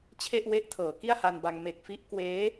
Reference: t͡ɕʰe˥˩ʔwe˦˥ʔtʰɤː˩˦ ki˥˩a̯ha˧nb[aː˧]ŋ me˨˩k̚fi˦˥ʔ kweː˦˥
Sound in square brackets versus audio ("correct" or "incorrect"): incorrect